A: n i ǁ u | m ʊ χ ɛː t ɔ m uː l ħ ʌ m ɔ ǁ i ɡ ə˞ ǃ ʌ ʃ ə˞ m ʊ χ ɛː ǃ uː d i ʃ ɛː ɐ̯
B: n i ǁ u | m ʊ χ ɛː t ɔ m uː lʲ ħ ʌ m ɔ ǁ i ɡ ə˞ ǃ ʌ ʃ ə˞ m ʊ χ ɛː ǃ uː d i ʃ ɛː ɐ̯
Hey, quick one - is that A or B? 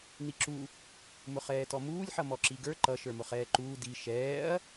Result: B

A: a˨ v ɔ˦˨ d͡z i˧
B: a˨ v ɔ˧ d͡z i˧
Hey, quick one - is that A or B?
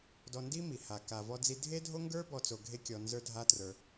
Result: B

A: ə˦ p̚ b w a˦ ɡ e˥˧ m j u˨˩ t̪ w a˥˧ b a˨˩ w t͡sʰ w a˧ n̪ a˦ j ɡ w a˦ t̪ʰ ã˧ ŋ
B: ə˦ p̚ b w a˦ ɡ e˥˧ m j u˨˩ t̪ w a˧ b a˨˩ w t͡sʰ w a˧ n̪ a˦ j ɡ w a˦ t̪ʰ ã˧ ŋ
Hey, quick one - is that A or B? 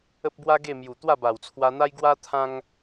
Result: A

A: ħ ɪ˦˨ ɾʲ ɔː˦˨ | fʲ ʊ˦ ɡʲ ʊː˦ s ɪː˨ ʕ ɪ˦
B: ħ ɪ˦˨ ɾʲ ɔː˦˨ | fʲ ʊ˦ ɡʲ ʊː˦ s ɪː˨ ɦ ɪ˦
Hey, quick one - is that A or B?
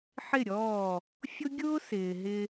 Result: B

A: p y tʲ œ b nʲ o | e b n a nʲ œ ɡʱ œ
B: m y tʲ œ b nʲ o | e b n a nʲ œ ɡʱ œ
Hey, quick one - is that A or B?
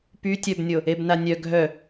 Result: A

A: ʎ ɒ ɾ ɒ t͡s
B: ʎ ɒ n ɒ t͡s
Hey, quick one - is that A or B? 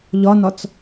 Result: B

